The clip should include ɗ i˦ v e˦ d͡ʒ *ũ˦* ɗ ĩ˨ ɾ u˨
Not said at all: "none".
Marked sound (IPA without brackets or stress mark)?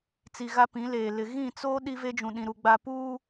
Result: ũ˨